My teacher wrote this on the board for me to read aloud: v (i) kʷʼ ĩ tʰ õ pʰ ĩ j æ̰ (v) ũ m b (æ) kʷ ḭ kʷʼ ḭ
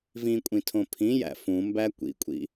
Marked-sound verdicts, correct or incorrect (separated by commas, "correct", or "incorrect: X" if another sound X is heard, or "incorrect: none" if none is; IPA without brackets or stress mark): incorrect: ĩ, incorrect: f, correct